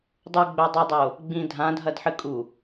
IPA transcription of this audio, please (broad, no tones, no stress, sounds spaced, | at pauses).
dˤ u ɡ͡b ɵ dˤ ʉ dˤ o | ɡ͡b ĩ dʱ ã dʱ ɐ d ħ ɨ kʼ u